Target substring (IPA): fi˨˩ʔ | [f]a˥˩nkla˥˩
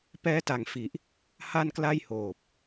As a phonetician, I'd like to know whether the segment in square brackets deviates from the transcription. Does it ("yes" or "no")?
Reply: yes